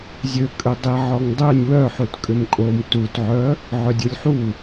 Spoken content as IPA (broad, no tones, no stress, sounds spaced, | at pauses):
zʲ ø kʼ ø dˤ i ʕ ɔ ŋ dˤ ø nʲ w œ ħ u t kʼ ʏ m kʼ o m t u t ʕ œ | ʕ œ dʲ u lʲ ħ u